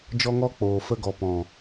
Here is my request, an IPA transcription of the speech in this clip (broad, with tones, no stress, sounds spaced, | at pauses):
d͡ʒ ɔ˧ ŋ ɔ˧ k͡p oː˨ f ə˦ ɡ ɔ˧ p ɔ̃˨